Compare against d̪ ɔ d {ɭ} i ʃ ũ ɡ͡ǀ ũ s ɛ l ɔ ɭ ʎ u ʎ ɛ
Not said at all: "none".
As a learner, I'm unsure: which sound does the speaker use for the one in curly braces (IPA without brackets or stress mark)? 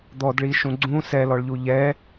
ɭ